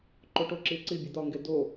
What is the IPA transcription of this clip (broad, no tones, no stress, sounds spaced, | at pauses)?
ǃ o ʈ o ǁ i ǀ i bʲ o d̪ ɒ ŋ ɡ e d o